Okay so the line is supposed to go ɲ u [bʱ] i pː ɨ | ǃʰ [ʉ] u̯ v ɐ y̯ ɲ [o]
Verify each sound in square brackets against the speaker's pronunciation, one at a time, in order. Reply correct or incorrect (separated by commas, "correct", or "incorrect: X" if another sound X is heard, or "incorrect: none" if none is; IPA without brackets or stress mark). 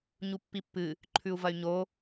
incorrect: pː, correct, correct